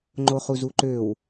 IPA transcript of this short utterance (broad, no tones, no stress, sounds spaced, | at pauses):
ŋ͡ǃ o χ u z u ǃ ø w